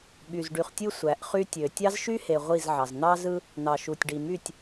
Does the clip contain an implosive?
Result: yes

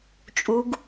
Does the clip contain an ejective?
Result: yes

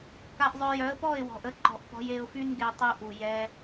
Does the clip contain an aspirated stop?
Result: no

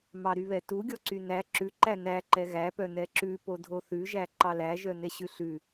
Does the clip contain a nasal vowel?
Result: no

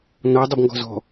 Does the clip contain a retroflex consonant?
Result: no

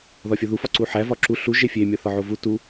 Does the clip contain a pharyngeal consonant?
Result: yes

